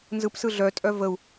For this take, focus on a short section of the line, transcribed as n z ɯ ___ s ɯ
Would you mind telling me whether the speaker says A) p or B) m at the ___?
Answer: A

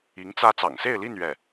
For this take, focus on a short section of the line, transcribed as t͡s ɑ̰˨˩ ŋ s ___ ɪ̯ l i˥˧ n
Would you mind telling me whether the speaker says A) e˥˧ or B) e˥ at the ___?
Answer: A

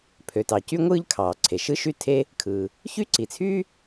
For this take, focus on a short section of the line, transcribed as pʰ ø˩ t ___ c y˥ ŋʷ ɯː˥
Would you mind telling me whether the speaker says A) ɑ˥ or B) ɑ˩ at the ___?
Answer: B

